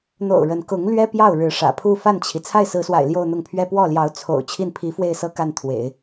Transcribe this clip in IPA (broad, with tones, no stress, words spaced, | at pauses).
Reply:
n̪o̰˨˩ʊ̯ ɻə˧˥n kʊ˧˥ŋ lɥɛ˥pjɑ˥˩ʊ̯ ɻɻ̩˧˥ʂä̰˨˩pʰu˥˧ fa˥˩nt͡ɕʰi˩ t͡sʰa˥˩ɪ̯sɹ̩˧˥swa̰˨˩ɪ̯ ljo˥˧ʊ̯n̪ʊ˥˩ŋpʰɥɛ˥ pwɔ˥˩ljɑ˧˥ʊ̯ t͡sʰo̰˨˩ʊ̯ t͡ɕʰi˥˩npʰi˧˥fwe˥˩ɪ̯sɤ˥ ka˥˩nt̪ʰwḛ˨˩˦ɪ̯